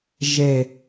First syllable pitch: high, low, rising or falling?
low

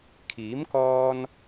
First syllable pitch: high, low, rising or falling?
rising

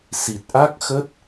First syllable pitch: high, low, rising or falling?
low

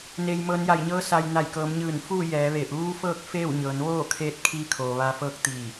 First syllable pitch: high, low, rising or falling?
low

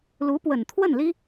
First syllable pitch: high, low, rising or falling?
rising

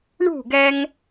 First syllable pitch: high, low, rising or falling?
falling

